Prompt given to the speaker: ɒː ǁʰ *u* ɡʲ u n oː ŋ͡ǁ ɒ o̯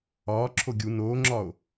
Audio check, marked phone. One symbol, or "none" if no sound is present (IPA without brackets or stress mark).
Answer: o